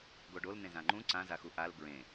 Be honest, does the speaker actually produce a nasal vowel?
yes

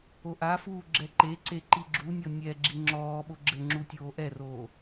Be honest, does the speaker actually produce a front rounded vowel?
no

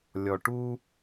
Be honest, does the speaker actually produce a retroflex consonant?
yes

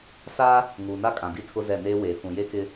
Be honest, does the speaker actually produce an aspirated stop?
yes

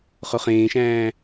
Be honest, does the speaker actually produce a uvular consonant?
yes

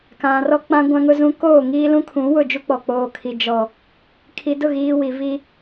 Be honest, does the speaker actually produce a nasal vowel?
yes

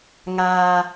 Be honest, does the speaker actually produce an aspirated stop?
no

